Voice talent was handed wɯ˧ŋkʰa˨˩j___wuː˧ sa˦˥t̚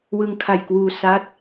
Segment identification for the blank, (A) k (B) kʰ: A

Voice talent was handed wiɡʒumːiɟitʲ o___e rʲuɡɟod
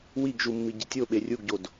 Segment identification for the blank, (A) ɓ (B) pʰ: A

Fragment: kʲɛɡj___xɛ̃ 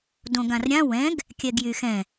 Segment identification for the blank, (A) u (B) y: B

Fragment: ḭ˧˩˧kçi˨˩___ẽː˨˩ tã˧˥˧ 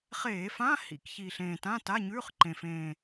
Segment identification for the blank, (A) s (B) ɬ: B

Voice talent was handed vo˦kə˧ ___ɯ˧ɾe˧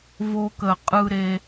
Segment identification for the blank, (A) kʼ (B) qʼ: B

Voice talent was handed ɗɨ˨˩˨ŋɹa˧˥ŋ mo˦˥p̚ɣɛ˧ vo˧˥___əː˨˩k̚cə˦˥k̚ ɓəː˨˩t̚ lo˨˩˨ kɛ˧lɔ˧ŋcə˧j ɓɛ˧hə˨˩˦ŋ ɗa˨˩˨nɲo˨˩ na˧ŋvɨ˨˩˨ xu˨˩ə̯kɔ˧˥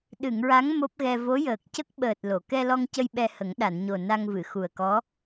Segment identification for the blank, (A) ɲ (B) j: B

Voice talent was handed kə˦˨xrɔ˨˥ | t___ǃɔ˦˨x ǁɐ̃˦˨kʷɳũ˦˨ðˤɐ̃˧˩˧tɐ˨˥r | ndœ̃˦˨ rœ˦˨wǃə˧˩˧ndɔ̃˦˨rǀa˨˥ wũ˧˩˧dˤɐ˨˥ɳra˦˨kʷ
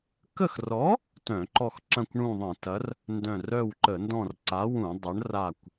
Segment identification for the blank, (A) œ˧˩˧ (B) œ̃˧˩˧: B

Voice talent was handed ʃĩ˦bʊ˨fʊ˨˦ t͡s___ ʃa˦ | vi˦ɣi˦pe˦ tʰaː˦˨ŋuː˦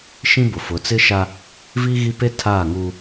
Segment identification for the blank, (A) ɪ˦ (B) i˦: A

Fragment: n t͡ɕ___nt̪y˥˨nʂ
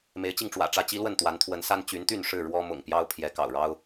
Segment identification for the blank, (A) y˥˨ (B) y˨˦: B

